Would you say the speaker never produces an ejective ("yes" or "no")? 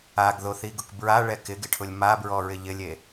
yes